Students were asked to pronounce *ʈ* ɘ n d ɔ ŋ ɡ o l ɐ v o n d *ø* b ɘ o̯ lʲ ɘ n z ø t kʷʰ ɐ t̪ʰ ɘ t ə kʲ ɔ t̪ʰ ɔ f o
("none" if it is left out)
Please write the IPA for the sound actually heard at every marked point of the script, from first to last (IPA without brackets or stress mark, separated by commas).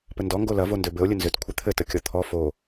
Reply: p, ø